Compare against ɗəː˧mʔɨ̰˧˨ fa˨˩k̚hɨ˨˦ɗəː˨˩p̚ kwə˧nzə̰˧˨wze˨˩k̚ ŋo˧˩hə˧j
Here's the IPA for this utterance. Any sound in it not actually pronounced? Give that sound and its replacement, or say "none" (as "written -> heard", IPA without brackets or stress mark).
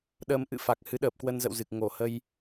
e˨˩ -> ɨ˨˩